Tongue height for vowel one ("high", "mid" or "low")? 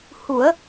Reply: high